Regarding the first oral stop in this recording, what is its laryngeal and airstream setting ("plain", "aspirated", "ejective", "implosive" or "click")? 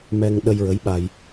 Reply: implosive